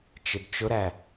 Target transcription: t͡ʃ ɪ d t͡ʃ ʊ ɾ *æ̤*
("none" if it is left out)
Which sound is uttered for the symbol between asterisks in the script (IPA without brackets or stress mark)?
æ